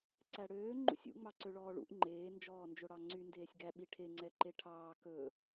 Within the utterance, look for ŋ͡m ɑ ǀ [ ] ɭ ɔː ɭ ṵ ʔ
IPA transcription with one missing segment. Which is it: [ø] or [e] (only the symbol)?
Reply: ø